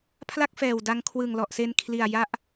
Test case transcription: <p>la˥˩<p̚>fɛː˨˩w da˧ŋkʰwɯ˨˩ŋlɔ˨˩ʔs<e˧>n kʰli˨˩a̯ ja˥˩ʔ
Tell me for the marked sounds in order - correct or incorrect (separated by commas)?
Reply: incorrect, incorrect, correct